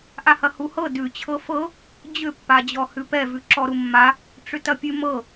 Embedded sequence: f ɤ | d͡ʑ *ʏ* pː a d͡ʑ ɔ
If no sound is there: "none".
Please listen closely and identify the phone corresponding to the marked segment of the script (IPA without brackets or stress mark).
ʏ